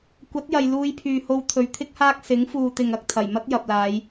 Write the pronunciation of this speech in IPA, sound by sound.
kʷ ɐ˨˥ t̚ j ɐ˨ j l uː˧ j pʰ yː˨ h o˧ w t̪ʰ ɵ˨˧ ɥ t̪ʰ ɪ˥ k̚ h aː˥ k̚ s ɪ˨˥ ŋ f uː˨ t̪ ɪ˨ ŋ ɐ˨ k̚ t̪ʰ ɐ˨˩ j m ɐ˥ t̚ j ɐ˨ p̚ l aː˨˧ j

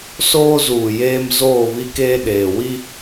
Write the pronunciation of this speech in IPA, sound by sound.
s oː˦ z uː˨ j eː˦ m z oː˦˨ β i˦ k eː˦ ɗ eː˨ w i˦

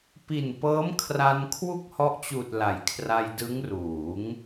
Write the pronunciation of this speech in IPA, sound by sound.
p i˨˩ n p ɤː˦˥ m kʰ r a˧ n kʰ w u˥˩ k̚ h ɔ˦˥ ʔ t͡ɕ uː˨˩ t̚ l a˩˦ j kʰ r a˧ j d ɯ˦˥ ŋ r uː˩˦ ŋ

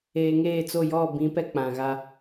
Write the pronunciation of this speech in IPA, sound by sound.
eː˨ ŋ eː˦˨ t͡s o˦˨ j ɔ˦˨ b ĩ˨˦ p ɛ˦ k͡p ã˨ ɣ a˦

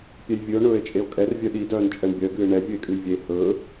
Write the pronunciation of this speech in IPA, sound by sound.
pʲ ɛ j vʲ ɨ o̯ ɳ ɵː e̯ t͡ʃʼ e o̯ kʼ ɛ r vʲ œ ɗ i d œː n t͡ʃʼ ɛ ɳ bʲ œ ɡ ɨː ɳ ɛ vʲ ɨ e̯ kʼ ɨ j vʲ e h ɵː

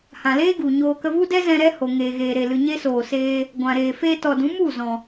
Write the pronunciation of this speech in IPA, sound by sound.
h ã˨ l eː˦ ɡ u˨ ɲ oː˧ k ə˧ v u˦ d ɛ˦ z ɛ̃˧ ɾ ɛ˦ h o˨ ŋ eː˨ ɣ eː˨ ɾ e˨ l ɨ˨ ɲ e˦ s oː˨ s eː˧ | ɡʷ ã˨ ɾ eː˨ f eː˧ t ɔ˨ d ũ˨˦ m u˦˨ z ɔ̃˨

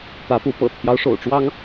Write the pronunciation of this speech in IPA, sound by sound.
t̪ ä˨˦ p u˨˦ p ɤ̰˨˩ t̪ʰ j ɑ˦ ʊ̯ ʂ o̰˨˩ ʊ̯ ʈ͡ʂ w ɑ˦ ŋ

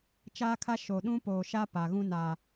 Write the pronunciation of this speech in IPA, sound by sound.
t͡ʃ aː˦ kʰ a˦ ʃ o˨ ɗ ũ˦ p oː˨ ʃ a˦ p a˨ ɣ ũ˦ n a˨

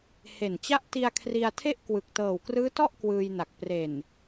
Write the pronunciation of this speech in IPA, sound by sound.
h e˨˩ n t͡ɕ a˦˥ ʔ t i˧ a̯ kʰ r i˧ a̯ tʰ e˥˩ ʔ k w ɯ˨˩ k̚ t ɤː˨˩ w k r ɯː˦˥ t ɔ˥˩ ʔ k w ɯː˧ j n a˨˩ k̚ p r e˨˩ n

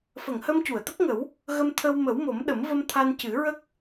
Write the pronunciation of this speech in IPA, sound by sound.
f ə˨˩˨ ŋ h ə˧ m c u˨˩˨ ə̯ t̪ ə˦˥ k̚ ŋ ə˨˩˦ w | ɣ ə˧ m t̪ʰ ə˧ w m ə˨˩˦ w m o˨˩˦ m ɗ ə˨˩˦ m v ə˧ m t̪ʰ a˧ n c ɨ˨˩˦ ɹ ə˦˥ k̚

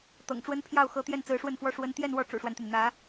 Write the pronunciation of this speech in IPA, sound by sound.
t̪ ɤ̰˨˩ ŋ ʈ͡ʂ w ə˥ n pʰ j ɑ˥˩ ʊ̯ x ɤ˧˥ t̪ j ɛ˥˩ n t͡s ɹ̩˧˥ ʂ w ə˥˩ n f w ɔ˥ ʂ w ə˥ n t̪ j ɛ˥˧ n w ɔ˥˩ ʈ͡ʂ ṵ˨˩ ʂ w a˦ n t̪ y˩ n n̪ ä˧˥

